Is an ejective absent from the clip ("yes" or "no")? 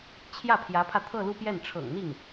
yes